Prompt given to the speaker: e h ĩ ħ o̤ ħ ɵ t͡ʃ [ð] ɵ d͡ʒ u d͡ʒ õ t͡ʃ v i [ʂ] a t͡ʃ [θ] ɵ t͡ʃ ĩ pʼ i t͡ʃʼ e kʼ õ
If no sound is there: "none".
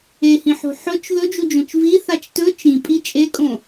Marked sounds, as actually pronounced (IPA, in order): ð, θ, t

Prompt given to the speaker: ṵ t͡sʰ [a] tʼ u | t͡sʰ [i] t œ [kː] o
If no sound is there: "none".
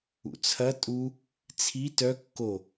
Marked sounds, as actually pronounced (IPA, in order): ɐ, i, kː

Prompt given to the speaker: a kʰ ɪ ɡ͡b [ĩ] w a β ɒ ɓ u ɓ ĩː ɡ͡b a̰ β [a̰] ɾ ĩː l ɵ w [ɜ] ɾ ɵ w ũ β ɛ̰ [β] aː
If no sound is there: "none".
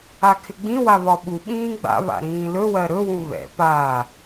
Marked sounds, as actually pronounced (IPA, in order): ĩ, a̰, ɜ, p

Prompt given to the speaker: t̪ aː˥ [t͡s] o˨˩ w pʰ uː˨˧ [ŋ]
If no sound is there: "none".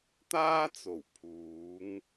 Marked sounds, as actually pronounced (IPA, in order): t͡s, ŋ

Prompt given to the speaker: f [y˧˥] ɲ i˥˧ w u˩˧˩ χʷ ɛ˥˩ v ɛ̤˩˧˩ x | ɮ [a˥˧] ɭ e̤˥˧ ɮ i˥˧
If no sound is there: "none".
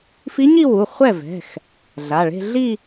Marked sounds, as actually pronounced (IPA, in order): i˧˥, a˩˧˩

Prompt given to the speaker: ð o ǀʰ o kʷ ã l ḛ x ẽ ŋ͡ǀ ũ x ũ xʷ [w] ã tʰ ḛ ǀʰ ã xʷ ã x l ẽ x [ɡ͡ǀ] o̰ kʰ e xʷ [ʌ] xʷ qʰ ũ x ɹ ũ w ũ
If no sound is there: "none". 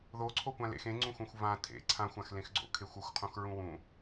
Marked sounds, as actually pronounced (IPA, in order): v, ɡ͡ǀ, ʌ

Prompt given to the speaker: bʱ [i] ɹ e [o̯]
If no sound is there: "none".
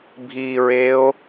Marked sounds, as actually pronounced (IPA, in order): i, o̯

